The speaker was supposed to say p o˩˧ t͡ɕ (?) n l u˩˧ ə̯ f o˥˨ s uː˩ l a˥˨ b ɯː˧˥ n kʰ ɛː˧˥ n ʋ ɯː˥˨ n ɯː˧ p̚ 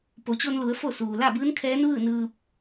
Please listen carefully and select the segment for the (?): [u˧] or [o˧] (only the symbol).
o˧